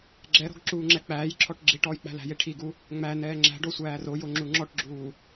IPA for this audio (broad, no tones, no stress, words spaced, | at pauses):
ɡ͡ǁɛɾɔ̤ɡ ǁuːŋ͡ǁɛk͡pæːjǁʰɔʈ ɡ͡ǁi ʈɔːjk͡pæ̤læ̤je ʈʰiɡu | ŋ͡mæ nɛːŋ͡ǁæ̤ɖo sʷæːrojo ŋ͡ǁuŋ͡ǁɔʈɡ͡ǁuː